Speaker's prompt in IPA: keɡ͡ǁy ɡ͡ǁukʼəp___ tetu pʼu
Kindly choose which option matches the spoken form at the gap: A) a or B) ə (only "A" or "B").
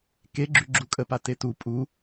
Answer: A